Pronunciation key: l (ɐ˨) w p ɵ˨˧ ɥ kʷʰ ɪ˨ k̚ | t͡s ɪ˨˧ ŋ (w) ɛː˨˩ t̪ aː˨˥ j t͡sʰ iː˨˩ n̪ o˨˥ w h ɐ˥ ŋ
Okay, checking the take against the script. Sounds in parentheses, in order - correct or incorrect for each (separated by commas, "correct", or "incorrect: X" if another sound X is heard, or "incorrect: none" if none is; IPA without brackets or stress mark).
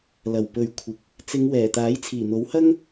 incorrect: ɐ˨˩, correct